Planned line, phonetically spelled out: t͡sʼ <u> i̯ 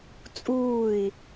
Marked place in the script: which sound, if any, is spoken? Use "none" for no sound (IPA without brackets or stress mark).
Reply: uː